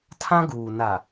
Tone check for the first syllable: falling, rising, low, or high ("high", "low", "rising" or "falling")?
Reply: high